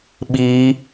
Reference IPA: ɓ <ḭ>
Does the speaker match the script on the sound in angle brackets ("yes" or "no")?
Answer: no